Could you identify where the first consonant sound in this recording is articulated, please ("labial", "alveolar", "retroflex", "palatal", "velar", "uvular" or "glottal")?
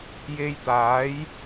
palatal